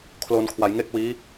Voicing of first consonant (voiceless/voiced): voiceless